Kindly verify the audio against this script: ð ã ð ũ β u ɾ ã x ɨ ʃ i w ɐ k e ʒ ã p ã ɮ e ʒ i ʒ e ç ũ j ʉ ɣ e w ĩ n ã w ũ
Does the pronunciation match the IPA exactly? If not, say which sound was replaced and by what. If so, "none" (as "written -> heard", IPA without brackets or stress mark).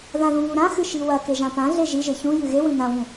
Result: none